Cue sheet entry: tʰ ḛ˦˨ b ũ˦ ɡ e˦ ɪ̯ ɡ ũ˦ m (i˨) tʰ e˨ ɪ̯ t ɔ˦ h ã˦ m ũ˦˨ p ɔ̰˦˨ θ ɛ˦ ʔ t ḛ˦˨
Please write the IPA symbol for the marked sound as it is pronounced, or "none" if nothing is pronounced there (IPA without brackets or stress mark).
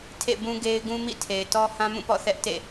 ḭ˦˨